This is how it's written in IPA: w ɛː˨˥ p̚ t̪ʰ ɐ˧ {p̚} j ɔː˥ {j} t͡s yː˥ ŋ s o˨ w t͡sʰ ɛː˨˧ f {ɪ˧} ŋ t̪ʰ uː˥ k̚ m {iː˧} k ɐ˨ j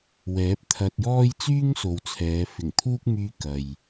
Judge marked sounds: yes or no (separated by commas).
no, yes, no, no